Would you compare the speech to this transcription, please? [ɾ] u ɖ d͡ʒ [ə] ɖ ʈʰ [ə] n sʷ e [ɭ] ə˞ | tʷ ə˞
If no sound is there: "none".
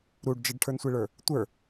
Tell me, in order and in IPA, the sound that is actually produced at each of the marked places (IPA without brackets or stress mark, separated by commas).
ɾ, ə, ə˞, ɭ